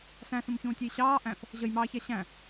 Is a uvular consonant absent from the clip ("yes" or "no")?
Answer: yes